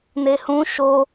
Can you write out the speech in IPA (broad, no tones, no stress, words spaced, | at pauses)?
nehũ ʃo